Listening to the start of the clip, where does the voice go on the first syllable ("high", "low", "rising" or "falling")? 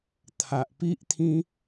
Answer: low